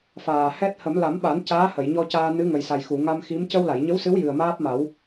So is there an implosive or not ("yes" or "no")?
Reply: yes